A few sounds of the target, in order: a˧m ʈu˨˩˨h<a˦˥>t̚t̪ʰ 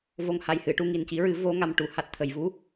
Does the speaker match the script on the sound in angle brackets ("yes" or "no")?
yes